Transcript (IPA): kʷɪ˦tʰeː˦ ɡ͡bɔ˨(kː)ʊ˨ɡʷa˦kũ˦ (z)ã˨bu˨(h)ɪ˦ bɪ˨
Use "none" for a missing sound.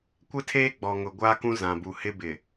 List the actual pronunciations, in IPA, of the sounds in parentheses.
ŋ, z, h

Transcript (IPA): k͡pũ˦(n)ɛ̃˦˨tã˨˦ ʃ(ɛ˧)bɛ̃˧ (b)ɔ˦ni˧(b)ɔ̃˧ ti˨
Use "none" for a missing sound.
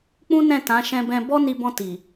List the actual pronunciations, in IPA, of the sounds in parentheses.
n, ɛ̃˧, b, b

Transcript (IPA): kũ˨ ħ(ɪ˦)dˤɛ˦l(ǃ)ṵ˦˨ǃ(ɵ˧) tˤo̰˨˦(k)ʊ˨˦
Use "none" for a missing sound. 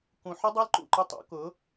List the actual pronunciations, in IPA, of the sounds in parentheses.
ɪ˦, ǃ, ʊ˧, k

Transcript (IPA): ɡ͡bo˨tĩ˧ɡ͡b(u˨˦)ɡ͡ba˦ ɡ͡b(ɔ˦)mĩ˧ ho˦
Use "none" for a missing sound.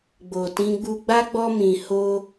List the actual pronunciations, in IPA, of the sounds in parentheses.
u˧, ɔ˦

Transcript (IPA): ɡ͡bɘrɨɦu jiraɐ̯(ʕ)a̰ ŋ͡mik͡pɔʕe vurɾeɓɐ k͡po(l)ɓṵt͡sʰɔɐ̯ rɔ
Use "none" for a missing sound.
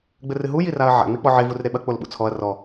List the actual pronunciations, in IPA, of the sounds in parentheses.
ʕ, l

